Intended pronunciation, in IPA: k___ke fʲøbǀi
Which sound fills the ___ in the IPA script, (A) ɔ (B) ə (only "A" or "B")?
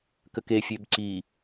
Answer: B